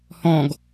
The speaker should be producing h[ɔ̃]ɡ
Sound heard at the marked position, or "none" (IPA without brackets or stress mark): ɔ̃